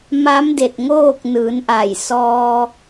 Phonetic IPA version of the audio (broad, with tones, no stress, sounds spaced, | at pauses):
m aː˧˥ m d e˧˩ t̚ ŋ oː˥˨ k̚ n ɯː˩˧ n ʔ a˧˩ j s ɔː˧